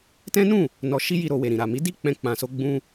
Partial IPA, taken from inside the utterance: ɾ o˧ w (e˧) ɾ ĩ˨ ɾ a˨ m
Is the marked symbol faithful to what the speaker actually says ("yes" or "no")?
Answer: no